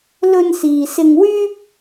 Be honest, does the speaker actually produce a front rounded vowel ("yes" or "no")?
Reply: yes